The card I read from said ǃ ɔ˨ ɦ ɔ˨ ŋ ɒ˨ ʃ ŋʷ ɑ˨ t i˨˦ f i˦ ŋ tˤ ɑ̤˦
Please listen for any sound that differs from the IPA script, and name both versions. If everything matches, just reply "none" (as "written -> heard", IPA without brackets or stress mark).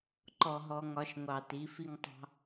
none